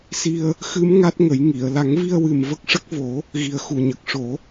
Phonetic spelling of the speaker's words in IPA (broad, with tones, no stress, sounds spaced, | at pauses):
s i˧ ə̯ | x ɨ˧˥ m ŋ a˦˥ t̚ ŋ ə˨˩˦ j ŋ i˨˩˨ ə̯ l a˨˩˦ ŋ v i˧ ə̯ w ɨ˨˩ m v ə˦˥ k̚ ʂ ə˦˥ k̚ v o˨˩˦ | ɣ i˨˩ ə̯ x u˨˩ ɲ ə˨˩ k̚ ʂ o˨˩˦